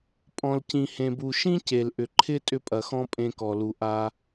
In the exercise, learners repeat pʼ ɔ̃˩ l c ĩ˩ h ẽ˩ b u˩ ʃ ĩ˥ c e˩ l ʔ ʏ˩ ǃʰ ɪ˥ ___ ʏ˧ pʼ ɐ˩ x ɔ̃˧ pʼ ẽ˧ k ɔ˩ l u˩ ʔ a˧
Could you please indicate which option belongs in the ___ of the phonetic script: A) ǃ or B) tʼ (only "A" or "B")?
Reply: B